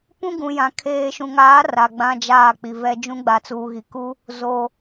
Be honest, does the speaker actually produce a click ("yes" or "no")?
no